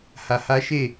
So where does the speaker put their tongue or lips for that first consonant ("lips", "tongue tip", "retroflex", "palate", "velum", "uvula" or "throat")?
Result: throat